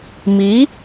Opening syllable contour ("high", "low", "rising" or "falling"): rising